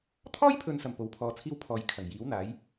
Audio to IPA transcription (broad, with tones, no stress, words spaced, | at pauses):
t̪ʰɔː˥jpʰɵ˨nsɐ˨˩m po˨˥wpʰɔː˨˧t͡sʰiː˥w pʰɔː˧j kʰɐ˨˩ŋ jiː˨˥wn̪aː˨˥j